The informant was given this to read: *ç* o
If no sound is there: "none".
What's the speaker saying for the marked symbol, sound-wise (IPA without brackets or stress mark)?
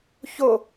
ç